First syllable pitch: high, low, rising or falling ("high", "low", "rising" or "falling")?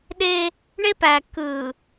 high